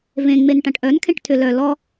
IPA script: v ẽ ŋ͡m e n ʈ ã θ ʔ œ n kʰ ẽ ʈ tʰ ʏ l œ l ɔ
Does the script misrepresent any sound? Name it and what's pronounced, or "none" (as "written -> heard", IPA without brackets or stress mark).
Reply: θ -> ʈ